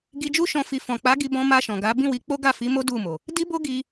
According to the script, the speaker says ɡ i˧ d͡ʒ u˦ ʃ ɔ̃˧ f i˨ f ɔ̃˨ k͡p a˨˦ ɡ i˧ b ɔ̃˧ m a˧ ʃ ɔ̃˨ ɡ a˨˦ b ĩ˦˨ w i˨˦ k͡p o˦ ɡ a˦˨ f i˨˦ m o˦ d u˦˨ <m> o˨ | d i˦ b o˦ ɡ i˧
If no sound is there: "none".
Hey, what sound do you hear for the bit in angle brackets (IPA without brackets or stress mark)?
m